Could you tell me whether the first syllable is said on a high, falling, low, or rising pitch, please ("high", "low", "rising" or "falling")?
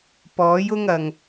rising